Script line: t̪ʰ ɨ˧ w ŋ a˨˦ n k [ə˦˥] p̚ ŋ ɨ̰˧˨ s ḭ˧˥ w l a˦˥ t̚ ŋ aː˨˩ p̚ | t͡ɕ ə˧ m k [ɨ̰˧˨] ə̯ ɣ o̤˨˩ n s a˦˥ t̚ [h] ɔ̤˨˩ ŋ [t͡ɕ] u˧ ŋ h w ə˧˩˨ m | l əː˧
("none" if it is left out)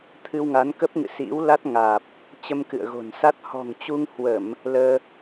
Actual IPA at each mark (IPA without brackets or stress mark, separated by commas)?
ə˦˥, ɨ̰˧˨, h, t͡ɕ